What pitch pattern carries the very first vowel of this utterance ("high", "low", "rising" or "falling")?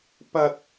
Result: high